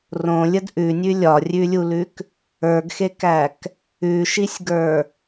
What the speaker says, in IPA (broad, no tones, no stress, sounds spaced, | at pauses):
r õ lʲ ə d ʔ ʉ nʲ ʉ lʲ ɒ rʲ ʉ lʲ u l ʉ k | ə˞ ɡ x e k æ k | ʉ ʃ i sʲ ɡ ə˞